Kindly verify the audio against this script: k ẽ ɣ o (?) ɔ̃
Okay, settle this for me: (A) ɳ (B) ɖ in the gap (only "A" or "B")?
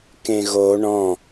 A